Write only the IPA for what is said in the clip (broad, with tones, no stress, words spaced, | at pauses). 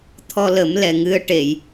t̪ʰɔ˧lə˨˩˦m lɛ˨˩ŋɨ˧ə̯ ʈe˨˩˨j